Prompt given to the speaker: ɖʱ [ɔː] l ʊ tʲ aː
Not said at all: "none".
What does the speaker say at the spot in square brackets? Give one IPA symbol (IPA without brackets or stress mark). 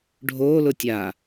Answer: oː